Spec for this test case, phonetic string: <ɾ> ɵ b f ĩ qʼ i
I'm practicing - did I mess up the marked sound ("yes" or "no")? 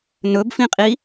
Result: yes